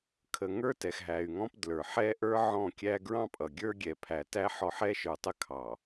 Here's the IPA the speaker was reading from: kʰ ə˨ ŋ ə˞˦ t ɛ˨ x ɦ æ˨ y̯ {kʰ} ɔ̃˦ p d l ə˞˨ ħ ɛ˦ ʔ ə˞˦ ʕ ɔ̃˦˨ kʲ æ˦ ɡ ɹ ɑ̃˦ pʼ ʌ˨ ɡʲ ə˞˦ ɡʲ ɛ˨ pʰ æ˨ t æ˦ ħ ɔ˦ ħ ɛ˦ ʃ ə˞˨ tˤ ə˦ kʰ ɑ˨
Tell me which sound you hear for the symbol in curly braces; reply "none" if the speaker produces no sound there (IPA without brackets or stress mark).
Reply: ŋ